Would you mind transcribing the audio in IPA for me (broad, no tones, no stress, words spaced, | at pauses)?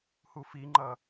hufiŋ͡ǃʌ